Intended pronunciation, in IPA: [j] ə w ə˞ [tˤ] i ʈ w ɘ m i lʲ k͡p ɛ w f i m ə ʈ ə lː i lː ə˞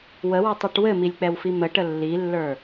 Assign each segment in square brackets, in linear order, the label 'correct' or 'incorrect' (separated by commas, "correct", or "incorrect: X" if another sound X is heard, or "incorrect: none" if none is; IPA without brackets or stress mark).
incorrect: w, correct